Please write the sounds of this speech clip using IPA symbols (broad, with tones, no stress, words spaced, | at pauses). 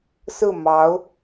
sɹ̩˥˩mɑ˧˥ʊ̯